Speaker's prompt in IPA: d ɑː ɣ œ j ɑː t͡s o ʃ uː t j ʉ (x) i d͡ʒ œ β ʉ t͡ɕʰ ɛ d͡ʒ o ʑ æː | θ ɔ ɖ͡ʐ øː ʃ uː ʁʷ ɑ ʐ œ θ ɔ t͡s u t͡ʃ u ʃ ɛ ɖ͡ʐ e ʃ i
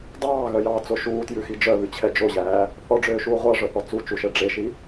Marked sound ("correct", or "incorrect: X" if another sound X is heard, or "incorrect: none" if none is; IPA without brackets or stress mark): correct